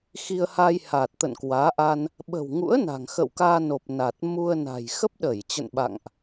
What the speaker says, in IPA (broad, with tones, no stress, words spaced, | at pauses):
xi˧ə̯ha˧jha˨˩t̚ t̪ə̰˧˨n kwaː˨˦ʔa˧n | ɓə̤˨˩wŋṵ˧˥ə̯ na̤˨˩ŋxə̰˧˨wkaː˧no˨˩p̚ na˨˩t̚ mu˧ə̯na̤˨˩j xə˦˥p̚ɗə˧˩jt͡ɕə̰˧˨n ɓa̰˧˨ŋʔ